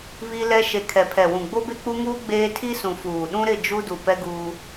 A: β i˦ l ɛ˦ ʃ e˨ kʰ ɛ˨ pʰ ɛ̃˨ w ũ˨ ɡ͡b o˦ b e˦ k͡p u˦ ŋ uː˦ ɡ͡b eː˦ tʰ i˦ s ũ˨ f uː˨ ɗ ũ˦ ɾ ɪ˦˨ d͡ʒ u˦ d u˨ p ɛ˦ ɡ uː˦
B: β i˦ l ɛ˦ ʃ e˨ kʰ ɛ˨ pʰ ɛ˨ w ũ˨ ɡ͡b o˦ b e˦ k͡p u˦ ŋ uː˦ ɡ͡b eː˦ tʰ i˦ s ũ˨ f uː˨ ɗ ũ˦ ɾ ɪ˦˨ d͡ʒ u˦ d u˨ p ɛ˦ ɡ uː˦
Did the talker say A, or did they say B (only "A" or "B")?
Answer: B